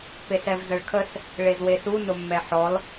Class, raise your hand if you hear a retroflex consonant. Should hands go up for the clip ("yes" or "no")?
yes